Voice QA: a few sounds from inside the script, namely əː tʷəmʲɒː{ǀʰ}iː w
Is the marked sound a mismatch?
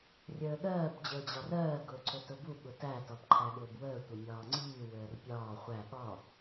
yes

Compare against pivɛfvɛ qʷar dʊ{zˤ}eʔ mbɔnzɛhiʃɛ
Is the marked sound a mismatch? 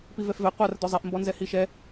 no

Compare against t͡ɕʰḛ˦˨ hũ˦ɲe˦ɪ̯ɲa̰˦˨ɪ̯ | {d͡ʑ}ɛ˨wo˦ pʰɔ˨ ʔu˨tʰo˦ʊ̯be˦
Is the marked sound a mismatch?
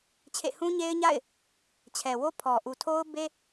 yes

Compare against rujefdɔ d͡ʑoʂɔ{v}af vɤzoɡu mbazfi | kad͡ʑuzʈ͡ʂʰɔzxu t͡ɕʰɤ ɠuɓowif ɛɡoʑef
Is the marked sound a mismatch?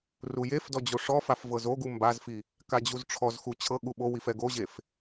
yes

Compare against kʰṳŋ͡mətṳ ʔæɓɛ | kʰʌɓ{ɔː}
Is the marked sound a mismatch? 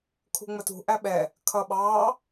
yes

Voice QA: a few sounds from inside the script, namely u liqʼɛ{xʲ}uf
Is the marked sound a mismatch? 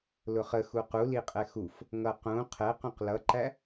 yes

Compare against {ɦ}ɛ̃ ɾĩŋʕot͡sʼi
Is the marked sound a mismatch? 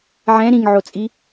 yes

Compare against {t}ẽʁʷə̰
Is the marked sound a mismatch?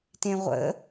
no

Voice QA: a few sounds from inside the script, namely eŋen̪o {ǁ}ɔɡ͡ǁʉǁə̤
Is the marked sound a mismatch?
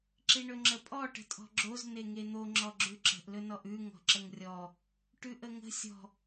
yes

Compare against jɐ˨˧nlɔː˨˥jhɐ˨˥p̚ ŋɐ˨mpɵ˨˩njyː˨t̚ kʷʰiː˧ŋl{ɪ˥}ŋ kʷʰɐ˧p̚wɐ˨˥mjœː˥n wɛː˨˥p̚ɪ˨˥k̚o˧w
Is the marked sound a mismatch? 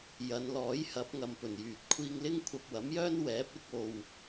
no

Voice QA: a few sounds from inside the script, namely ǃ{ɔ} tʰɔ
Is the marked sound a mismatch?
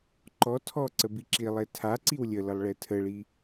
no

